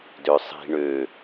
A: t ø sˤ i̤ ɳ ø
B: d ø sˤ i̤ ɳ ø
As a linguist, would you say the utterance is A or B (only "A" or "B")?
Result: B